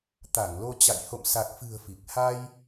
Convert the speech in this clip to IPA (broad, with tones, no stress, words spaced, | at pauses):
t̪a˧˩ŋlo˧t͡ɕa̰˧˨j ho̰˧˨msa˨˩k̚fɨ̤˨˩ə̯ fi˨˩k̚ ha˧j